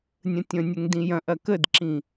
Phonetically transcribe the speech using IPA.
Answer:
nʲə̃tʲə̃nʲəŋ dĩjɐ̃ʔɐ kədǁĩ

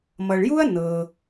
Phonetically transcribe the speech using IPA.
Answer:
mʌ˨ɭju˥ɐ̯ nɤ˨

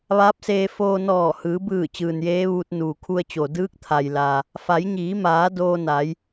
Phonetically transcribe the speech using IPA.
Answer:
ʋaː˧˥p̚seː˧ foː˧nɔː˧˩ hɯː˩˧bɯː˧˩ t͡ɕɯː˩njeː˧˥ʋuː˧t̚ nuː˩kʰu˧ə̯t͡ɕo˩ dɯː˧˥k̚t̪ʰa˩jla˩ | fa˩˧jɲiː˩˧maː˩˧ doː˧na˩˧j

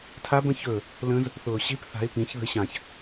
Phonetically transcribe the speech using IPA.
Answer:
tʰabə̃ çɵ | lə̃z | θʊːɕip θa̤ɪ̯ pĩç ðə̤ɪ̯ɕãç

